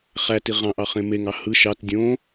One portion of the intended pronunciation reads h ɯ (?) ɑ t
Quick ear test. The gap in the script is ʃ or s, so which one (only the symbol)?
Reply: ʃ